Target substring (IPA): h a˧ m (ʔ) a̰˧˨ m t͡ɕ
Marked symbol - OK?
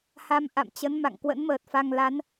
yes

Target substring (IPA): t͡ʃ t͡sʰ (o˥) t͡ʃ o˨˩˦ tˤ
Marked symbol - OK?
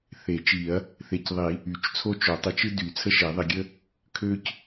yes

